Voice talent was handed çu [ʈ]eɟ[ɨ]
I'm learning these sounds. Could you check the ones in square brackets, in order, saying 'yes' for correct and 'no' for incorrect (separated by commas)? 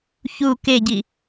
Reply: no, no